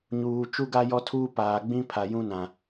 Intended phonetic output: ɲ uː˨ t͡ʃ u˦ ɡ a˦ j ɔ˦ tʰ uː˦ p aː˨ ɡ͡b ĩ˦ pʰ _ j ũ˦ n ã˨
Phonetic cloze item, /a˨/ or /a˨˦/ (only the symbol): a˨